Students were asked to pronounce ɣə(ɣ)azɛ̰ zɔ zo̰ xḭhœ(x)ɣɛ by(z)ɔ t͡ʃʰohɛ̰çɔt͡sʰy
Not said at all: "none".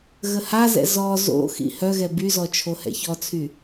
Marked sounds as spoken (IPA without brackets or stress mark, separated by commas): h, none, z